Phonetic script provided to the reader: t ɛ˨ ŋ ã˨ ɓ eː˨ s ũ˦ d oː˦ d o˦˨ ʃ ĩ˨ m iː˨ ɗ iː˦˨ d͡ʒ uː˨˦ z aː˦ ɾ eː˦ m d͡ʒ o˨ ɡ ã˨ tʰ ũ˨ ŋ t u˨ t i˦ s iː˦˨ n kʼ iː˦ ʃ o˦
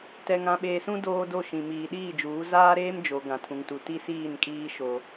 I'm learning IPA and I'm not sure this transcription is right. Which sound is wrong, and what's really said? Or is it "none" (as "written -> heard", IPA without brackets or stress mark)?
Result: none